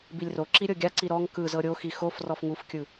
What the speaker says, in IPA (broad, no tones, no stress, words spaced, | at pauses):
bilʲroǁi ɾʲɤɡʲaǀi ɾɔŋ kɯ zɤɾʲoxi xof rɔfŋufkʲɯ